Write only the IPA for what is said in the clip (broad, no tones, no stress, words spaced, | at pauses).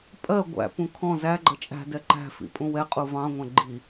pʼɜ ɡʷæ̰pũ kʰɔ̃ zæɡ͡ǃʌ t͡ʃʼæ̤dɛ ǃæ̤fḭ pʼũwɛqʼu vɑ̃ŋʷæ̃ ɡ͡ǃi